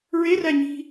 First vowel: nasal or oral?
oral